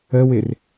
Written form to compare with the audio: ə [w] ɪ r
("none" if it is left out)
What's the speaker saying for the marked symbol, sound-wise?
w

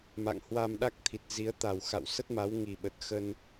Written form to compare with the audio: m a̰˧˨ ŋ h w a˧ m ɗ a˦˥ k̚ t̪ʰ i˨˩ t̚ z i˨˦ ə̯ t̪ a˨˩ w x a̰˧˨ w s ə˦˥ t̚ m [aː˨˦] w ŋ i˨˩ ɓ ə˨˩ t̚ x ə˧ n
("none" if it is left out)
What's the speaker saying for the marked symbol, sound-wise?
a˨˦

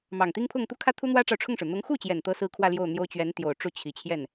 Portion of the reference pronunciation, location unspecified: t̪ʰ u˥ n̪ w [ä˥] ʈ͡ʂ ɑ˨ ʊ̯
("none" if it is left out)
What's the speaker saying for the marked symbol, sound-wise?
ä˥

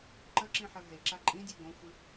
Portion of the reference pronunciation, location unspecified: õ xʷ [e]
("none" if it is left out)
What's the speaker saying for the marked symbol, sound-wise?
ɨ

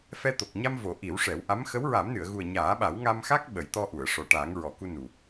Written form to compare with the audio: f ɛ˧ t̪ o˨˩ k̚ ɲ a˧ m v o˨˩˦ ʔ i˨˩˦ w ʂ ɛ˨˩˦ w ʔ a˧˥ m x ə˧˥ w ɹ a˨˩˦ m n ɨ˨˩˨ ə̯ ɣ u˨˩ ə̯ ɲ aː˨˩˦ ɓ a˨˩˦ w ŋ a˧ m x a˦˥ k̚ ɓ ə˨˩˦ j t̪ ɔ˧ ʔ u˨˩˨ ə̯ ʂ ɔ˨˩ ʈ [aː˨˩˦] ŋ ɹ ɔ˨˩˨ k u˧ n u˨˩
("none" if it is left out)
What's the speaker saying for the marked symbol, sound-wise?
aː˨˩˦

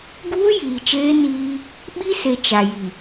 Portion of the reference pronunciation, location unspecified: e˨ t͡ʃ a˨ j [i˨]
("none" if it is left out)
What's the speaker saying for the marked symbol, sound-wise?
i˨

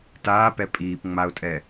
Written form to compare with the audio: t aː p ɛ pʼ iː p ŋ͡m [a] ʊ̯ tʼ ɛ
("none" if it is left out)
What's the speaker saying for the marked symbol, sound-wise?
a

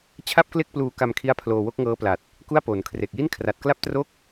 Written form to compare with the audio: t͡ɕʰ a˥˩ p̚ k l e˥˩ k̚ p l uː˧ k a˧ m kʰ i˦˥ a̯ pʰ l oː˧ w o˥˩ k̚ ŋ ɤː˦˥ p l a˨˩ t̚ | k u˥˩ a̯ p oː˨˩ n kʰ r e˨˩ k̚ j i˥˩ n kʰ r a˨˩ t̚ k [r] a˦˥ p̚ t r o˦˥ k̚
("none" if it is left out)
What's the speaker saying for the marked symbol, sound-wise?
l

